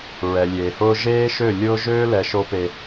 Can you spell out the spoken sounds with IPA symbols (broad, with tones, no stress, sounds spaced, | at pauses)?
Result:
ɹ ɛ˨ lʲ eː˨ h ʊː˦ ʒ eː˦ ʃ ø˦˨ lʲ ʊː˦ ʒ øː˦ l ɛ˨ ʃ o˦ p e˨